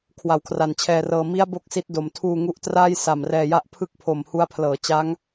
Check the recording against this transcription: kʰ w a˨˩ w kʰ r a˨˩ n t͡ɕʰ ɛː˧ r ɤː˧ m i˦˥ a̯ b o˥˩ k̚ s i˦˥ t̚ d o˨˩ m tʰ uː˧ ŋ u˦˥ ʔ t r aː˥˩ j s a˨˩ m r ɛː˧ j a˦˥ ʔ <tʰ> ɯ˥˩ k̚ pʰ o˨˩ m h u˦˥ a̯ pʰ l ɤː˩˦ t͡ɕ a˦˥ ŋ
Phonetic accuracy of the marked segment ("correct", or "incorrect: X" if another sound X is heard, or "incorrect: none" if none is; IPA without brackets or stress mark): incorrect: pʰ